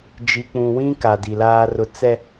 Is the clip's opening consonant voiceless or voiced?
voiced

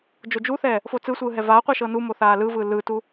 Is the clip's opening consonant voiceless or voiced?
voiced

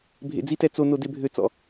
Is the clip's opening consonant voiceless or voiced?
voiced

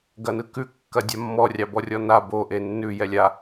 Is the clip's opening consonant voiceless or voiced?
voiced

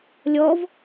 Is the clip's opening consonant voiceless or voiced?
voiced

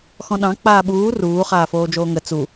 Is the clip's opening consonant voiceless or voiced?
voiceless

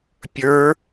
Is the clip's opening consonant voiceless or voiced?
voiceless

